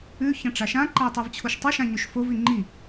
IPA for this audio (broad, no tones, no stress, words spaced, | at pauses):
ʉ çɐ̃ʈ͡ʂaʃã ǃai̯tˤivt͡ɕʰoʃtˤɨ ʃãɲʉʃfov iŋ͡ǃi